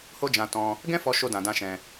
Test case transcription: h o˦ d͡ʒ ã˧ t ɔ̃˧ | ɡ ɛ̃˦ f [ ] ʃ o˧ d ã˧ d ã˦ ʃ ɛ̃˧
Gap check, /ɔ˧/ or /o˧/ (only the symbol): ɔ˧